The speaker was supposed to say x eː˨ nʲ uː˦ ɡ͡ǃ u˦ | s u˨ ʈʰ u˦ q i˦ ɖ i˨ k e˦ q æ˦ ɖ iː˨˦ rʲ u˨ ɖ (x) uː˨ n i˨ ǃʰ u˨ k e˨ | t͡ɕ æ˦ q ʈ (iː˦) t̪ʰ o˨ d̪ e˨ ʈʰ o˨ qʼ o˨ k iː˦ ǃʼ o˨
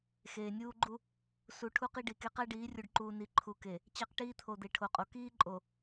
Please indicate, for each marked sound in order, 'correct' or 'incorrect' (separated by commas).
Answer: incorrect, correct